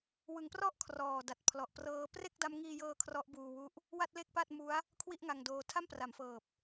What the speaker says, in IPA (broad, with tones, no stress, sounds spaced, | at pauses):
w ɯ˩˦ ŋ p r ɔ˥˩ ʔ kʰ r ɔː˨˩ d a˨˩ t̚ pʰ l ɔ˨˩ ʔ p r ɤː˦˥ p r e˥˩ k̚ d a˦˥ m ŋ iː˧ j ɤː˧ kʰ r ɔ˦˥ ʔ b uː˧ w u˦˥ ʔ | w a˥˩ t̚ l e˥˩ k̚ p a˥˩ t̚ m u˦˥ a̯ | kʰ w i˥˩ ʔ ŋ a˧ ŋ d oː˧ tʰ a˥˩ m p r a˩˦ m f ɤː˨˩ p̚